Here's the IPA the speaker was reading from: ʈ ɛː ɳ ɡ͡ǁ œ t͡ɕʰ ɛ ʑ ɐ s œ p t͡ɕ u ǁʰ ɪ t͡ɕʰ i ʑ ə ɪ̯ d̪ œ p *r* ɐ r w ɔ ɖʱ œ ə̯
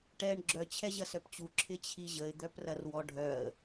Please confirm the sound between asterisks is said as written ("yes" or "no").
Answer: yes